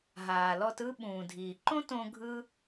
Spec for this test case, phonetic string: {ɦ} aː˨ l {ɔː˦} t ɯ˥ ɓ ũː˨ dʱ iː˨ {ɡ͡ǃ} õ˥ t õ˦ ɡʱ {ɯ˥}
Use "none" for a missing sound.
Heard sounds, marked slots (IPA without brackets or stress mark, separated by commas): ɦ, ɔ˦, ǃ, ɯ˥